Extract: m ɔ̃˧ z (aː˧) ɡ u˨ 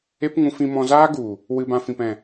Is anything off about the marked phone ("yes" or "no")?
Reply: yes